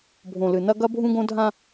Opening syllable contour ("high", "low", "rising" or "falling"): low